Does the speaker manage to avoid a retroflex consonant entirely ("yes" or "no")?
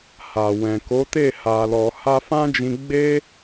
yes